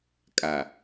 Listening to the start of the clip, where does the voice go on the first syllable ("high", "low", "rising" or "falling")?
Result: low